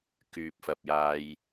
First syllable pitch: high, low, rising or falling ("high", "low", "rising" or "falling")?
low